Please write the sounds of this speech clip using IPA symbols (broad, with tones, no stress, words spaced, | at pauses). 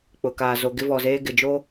k͡pʊ˨kaː˨ zo˨ ɡɪ˦vɔ˨zeː˦ ɡɪ˨d͡ʒo˦